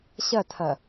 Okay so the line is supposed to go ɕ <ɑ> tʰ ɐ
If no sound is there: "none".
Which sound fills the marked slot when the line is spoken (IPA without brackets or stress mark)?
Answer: ɐ